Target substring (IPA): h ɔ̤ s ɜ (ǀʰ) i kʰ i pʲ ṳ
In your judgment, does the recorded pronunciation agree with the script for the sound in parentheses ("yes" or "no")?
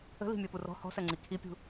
no